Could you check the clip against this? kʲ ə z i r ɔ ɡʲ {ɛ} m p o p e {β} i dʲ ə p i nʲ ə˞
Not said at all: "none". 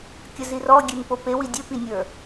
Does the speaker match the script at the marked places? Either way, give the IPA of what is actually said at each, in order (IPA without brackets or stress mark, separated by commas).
ɛ, w